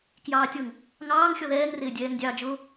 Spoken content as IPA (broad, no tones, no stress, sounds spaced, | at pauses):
k j ɑː tʲ ɤ ŋ | ŋ ɑː ŋ xʲ ɔ ð ɛː ŋ r ɪː dʲ ɛː ŋ dʲ ɑː d͡ʒ ʊ